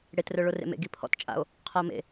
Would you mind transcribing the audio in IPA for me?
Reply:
ɽ e t r œ ɭ o r ḛ m ḛ ɡ i pʰ ɔ̰ t t͡ʃʼ a̰ o̯ | qʰ a o̯ m ḛ

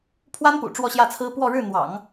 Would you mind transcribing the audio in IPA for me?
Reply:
pʰ w a˥ n p ṵ˨˩ ʈ͡ʂ w ɔ˥˧ ɕ j ä˥˩ t͡sʰ ɹ̩˥ p w ɔ˥˧ ɻ ɻ̩˥˩ n̪ w ɑ̰˨˩˦ ŋ

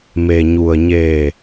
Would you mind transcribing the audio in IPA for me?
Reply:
m e˩ ɲ u˩ ə̯ ɲ eː˧˩

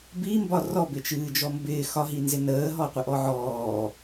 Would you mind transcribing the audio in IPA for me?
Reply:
b i m b ɒ r ɔ b ɪ t͡ʃ ɨː d͡ʒ ɔ m b ɪː x ɒ ɦ i n z ɪ n əː ɦ ɔ qʷ ɪ ʔ ɔ ʕ ɔː

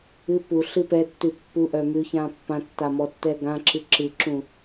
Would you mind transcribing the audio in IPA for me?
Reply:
ɨ p u ɬ ɨ p ɛ tː ʉ pː u ʔ œ m ʉ ç ã pː ã tː a m ɔ tː ɛ ɡ ã ǁ ɨ ǁ ɨ ǁ ũ

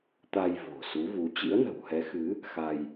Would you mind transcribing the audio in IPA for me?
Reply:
t̪ a˧ j v o̤˨˩ s u˨˦ v u˨˦ t͡ɕ ḭ˧˥ ə̯ n ə̤˨˩ w h ɛ˨˦ x ɨ˨˦ | x a˧ j

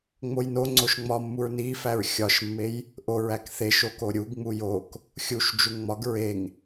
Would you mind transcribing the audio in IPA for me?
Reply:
ŋ͡m o j n o ŋ͡ǀ o ʃ ŋ͡m ɒ mː u ɹ n i f æ ɹ xʲ ɒ ʃ mː e j | ʔ o ɹ æ k θ e ʃ o k o ɾʲ u ɡ ŋ͡m u j o k | xʲ u ʃ d͡ʒ u ŋ ŋ͡m ɒ ɡ ɹ e ŋ

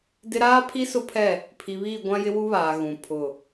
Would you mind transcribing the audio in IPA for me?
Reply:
d ɪ˦ ɾ aː˦ pʰ i˦ s ʊ˦ pʰ ɛ˦˨ | pʰ i˨ β iː˦˨ ɡʷ ã˦ j ɪ˦ w u˦ β aː˨ ɣ ũ˨ pʰ ʊ˦˨

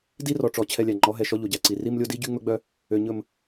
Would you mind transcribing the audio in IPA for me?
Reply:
d i˦ r ɔ˨ ʈ͡ʂ ɔ˨ t͡ɕʰ ɛ˦ lʲ æ˨ ŋ͡ǃ ɔ˨˦ ɦ ɛ˨ ʃ ɔ˦ ʎ o˨ ɟ æ˨ ǀ i˨ r i˦ m lʲ o˦ d i˦ ɟ y˦ ŋ͡m ɵ˦ ɡ͡b œ˦ | ø˨ ɲ ɵ˨ m

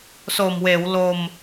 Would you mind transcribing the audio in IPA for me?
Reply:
s oː˨˩ m w eː˩˦ w l o˧ m

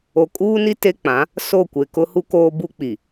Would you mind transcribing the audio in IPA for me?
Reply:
o˨ kʼ uː˦ n i˦ t e˦ k͡p ã˨˦ | s o˦˨ kʷ e˨ k ʊ˦ h u˦ k oː˦ b u˦ k͡p i˨

